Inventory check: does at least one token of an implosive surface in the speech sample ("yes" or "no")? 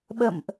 yes